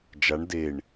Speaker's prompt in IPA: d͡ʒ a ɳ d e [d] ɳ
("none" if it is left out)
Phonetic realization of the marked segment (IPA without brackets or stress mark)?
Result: none